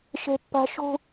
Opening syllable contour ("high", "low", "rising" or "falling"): high